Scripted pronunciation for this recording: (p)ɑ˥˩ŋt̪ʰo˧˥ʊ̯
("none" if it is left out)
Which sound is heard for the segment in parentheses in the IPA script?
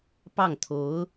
p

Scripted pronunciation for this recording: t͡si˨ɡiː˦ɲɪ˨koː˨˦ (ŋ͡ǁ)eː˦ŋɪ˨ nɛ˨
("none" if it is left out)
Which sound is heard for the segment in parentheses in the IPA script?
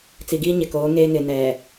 ŋ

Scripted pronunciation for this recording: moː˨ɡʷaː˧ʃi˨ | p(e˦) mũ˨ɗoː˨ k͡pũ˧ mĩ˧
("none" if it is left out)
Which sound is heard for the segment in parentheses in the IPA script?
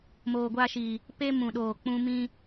e˦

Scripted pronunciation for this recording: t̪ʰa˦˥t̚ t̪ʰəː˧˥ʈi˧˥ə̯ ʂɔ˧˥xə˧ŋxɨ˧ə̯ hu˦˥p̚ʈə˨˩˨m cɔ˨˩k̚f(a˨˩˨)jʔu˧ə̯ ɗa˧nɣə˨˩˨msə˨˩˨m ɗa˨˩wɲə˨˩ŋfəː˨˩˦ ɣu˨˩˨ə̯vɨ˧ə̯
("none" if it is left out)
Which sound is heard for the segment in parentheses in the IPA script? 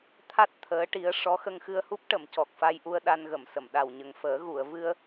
a˧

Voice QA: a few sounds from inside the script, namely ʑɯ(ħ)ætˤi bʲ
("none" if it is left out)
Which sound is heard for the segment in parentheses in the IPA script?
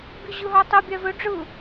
ɦ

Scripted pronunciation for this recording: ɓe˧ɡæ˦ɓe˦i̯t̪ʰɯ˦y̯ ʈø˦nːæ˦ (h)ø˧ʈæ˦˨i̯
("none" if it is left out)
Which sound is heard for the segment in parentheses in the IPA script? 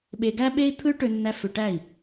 f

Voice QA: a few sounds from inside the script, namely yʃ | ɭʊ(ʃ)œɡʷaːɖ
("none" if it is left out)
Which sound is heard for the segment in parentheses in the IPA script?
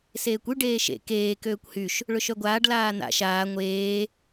ʃ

